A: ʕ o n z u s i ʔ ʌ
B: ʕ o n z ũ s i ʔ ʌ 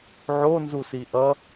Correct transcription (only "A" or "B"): A